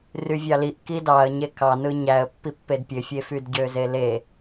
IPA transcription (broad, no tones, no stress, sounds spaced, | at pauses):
r y vʲ ɑ l i ʔ k i d ɑ ə̯ ɲ e k ɑ n ɯ ɲ æ ə̯ pː i pː e d pʲ ø fʲ e f y d ɟ ø z e l e